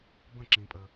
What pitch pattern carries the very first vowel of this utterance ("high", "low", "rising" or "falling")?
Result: falling